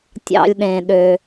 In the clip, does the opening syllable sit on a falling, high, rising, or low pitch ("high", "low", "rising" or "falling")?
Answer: low